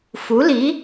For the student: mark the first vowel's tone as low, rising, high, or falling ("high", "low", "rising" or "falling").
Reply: rising